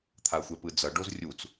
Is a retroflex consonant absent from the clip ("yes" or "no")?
no